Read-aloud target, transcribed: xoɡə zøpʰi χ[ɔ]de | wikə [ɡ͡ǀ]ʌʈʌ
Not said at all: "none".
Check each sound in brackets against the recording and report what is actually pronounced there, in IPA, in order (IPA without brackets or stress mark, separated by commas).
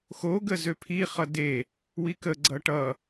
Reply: ʌ, ɡ͡ǀ